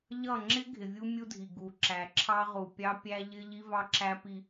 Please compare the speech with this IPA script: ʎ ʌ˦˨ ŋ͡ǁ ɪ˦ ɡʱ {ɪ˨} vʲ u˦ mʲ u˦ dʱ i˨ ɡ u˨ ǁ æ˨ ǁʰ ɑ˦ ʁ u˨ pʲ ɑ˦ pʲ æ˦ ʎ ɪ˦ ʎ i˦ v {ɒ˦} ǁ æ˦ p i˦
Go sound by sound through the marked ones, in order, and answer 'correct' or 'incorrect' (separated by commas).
correct, incorrect